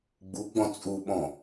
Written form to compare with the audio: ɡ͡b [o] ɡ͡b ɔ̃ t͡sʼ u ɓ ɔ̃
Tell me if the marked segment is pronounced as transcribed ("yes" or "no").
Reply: no